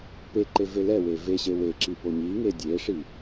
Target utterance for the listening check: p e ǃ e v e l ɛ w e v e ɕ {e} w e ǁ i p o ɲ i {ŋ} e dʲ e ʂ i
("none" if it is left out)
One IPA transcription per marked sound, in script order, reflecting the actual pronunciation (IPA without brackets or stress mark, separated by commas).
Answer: e, ŋ